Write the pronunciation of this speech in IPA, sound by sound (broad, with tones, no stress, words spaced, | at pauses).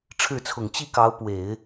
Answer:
ʈ͡ʂʰɻ̩˥˩t͡sʰʊ˨˩ŋ t͡ɕi˥˩kɑ˧˥ʊ̯ pwe˨˩˦ɪ̯